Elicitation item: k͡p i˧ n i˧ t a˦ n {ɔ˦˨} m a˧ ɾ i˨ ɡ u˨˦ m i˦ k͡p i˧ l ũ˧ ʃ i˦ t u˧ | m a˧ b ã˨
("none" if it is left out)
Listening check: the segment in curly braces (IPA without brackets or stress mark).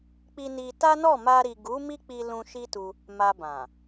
ɔ˦˨